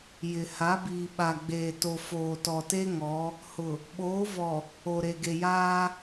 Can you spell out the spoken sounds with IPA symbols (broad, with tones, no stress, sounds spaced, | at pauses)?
j ɪ˨ h a˨˦ b iː˨ ɓ a˨ ɡ͡b eː˨ t o˨ f oː˨ t ɔ˨ t e˦ ŋ ɔ˨˦ | h ʊ˨ | ɓ oː˨˦ v ɔ˨ | o˨ ɾ e˨ ɡ e˨ j aː˦